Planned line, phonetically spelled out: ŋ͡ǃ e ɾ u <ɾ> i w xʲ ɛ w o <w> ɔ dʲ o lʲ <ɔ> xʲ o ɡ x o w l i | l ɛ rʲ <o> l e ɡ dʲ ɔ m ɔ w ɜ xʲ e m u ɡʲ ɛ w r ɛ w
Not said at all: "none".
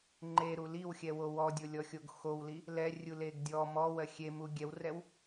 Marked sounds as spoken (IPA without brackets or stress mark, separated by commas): l, w, ɔ, u